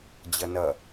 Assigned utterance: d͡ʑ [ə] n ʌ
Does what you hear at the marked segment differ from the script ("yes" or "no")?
yes